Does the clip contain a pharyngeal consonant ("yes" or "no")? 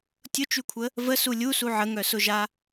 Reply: yes